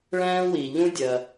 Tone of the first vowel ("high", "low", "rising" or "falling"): high